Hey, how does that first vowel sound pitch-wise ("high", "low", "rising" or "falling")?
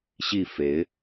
falling